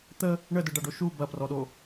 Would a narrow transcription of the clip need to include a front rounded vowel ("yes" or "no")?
no